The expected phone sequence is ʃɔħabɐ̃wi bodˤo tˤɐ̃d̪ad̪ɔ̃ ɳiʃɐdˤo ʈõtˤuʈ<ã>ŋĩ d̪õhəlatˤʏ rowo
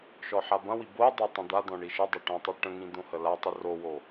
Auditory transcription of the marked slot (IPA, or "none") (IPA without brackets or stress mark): ə̃